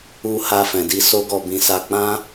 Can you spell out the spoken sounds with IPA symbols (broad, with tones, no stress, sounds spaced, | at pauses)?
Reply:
u˧ h a˧ f ɛ̃˨ d i˧ s o˦ ɡ ɔ˧ b ĩ˧ s a˧ k͡p ã˦